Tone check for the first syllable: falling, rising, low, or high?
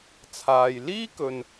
low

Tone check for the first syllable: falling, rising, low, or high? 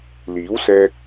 rising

